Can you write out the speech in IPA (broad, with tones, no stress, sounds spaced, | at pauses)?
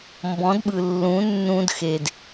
m b ɔ̃˩˥ d ɓ ɯ˩ lː ũ˩˥ nː ũ˧ d x e˩ d